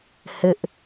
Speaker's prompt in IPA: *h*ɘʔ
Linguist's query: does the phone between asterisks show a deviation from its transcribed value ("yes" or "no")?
no